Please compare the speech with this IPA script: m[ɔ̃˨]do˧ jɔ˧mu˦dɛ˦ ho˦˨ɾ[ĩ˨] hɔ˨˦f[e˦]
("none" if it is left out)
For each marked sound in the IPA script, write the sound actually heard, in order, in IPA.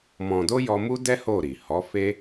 ɔ̃˨, i˨, e˦

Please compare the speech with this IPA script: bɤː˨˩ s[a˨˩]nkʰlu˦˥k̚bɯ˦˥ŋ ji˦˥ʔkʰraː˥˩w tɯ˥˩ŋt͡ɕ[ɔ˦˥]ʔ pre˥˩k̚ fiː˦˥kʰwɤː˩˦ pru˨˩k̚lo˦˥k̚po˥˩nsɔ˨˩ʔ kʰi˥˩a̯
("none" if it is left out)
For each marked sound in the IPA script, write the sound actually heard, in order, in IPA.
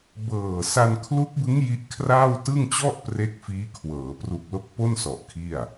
a˧, ɔ˥˩

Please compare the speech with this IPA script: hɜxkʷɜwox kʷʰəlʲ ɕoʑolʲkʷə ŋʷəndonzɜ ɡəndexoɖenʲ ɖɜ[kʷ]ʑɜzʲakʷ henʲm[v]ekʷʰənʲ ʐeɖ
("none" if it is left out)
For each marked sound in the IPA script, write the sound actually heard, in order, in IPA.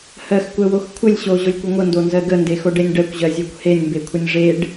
kʷ, b

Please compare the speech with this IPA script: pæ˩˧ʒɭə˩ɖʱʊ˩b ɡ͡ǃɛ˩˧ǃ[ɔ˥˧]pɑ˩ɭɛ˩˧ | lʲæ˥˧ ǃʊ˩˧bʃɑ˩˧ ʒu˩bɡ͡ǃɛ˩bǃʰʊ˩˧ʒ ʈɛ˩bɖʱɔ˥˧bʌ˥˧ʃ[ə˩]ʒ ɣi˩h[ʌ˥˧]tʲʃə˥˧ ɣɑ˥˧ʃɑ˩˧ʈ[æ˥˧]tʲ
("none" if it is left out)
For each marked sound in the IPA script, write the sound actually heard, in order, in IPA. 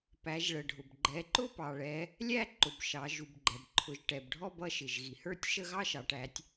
ʊ˥˧, ɪ˩, ə˞˥˧, æ˩˧

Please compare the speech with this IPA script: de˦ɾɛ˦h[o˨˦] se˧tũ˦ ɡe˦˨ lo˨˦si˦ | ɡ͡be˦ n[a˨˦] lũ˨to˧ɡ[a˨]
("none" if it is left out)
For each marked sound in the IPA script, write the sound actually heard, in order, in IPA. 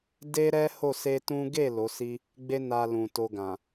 o˦˨, a˧, ã˨

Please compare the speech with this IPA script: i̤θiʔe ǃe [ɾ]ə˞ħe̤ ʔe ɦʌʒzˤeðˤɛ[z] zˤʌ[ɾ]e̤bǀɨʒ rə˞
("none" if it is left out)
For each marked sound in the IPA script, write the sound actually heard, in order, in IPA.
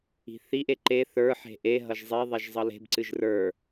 θ, ʒ, l

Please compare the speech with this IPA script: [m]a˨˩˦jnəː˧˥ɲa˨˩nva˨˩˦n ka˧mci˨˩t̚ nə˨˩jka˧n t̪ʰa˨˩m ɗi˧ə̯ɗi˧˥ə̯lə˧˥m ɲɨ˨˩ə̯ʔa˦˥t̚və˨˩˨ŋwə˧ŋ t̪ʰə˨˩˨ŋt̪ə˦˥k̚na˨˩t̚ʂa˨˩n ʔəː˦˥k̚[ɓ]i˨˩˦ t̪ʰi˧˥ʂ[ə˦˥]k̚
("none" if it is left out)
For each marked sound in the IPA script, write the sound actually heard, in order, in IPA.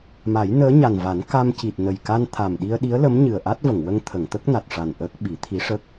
m, ɓ, ə˦˥

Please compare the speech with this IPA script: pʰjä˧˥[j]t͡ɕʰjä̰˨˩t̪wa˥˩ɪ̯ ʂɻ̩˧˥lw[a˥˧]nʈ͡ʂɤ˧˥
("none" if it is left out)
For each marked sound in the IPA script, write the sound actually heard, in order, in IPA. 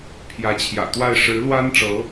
none, a˥

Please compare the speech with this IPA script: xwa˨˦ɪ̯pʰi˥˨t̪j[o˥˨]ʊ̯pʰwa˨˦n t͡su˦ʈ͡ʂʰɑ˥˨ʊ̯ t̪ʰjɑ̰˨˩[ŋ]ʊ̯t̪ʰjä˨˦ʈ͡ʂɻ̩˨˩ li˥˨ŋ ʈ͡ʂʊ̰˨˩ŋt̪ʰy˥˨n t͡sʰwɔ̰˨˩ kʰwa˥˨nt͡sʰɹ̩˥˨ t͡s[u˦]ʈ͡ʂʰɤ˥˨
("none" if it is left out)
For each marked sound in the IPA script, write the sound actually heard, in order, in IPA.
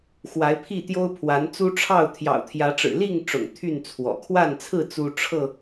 o˦, none, u˦

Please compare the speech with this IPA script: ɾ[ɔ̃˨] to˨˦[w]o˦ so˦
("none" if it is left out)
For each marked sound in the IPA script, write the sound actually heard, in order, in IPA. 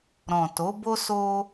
ɔ̃˨, b

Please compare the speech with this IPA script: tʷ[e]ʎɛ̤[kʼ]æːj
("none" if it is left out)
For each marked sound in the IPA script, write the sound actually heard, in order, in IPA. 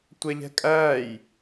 ɛ, kʼ

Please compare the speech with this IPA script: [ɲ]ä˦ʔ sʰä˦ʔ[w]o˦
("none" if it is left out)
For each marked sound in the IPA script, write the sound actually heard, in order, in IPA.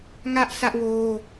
ŋ, w

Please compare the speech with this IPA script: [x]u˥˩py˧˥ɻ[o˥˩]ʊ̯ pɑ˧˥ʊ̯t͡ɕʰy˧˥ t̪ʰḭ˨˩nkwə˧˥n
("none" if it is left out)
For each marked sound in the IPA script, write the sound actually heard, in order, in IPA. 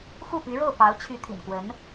x, o˥˩

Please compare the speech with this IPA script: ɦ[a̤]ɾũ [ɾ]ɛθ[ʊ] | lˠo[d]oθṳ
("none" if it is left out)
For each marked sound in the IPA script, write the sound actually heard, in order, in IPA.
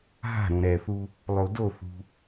a̤, ɾ, u, d

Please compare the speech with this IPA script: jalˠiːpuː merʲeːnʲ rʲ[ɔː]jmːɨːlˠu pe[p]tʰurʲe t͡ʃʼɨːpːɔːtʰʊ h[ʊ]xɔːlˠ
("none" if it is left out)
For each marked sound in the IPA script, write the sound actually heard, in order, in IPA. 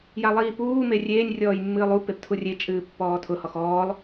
ɔː, p, ɔ

